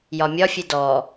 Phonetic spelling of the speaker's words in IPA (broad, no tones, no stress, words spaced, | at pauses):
jɒmʲɒfʲɨ dɔ